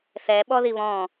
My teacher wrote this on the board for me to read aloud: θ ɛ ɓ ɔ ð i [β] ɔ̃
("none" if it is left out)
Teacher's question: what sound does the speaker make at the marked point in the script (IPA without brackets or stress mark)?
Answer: β